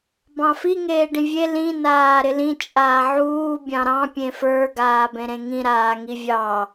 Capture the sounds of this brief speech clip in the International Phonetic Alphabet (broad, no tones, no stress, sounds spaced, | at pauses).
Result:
b ɑ̃ f i ŋ eː ɖ ĩ vʲ e l ĩ n aː ɾ ɪ l ĩ t͡ʃʼ aː ʕ uː bʲ ɑ̃ ɾ ɑ̃ pʲ ẽ f ə˞ ɡ aː b ẽ ɾ ẽ ŋ ĩ ɾ aː ŋ i vʲ ɑ